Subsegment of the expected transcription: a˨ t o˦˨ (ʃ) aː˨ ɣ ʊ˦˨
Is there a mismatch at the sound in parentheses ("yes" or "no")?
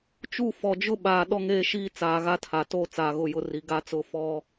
yes